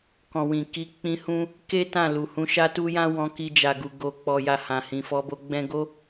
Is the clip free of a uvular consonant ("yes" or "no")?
yes